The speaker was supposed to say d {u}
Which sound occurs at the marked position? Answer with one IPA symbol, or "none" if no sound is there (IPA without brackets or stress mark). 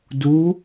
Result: u